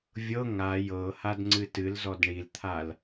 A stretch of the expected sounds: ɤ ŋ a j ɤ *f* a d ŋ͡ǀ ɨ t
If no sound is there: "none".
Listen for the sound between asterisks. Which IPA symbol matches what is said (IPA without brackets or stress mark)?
h